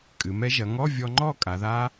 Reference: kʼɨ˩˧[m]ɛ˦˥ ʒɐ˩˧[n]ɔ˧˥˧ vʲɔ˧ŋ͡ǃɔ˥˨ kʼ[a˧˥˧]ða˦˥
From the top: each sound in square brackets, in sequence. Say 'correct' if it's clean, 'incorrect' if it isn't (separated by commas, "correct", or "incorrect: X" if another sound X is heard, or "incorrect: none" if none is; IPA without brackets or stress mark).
correct, incorrect: ŋ, incorrect: a˩˧